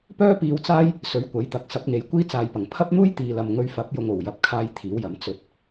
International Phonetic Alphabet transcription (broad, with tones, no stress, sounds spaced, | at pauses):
p œː˥ p iː˧ w t͡s aː˥ j | s ɵ˨˥ ɥ kʷ ɐ˨˥ j t̪ ɐ˨˥ k̚ s ɐ˨˥ p̚ ŋ e˨ j kʷ iː˥ t͡s aː˨ j p ɐ˨˩ ŋ pʰ ɐ˥ p̚ n̪ uː˥ j t̪ iː˨ l ɐ˨ m ŋ ɵ˧ ɥ f ɐ˨˥ p̚ j ʊ˨ ŋ o˨˩ w j ɐ˨ p̚ kʰ aː˧ j t̪ʰ iː˨˥ w j ɐ˨˥ m t͡s ɵ˨˥ t̚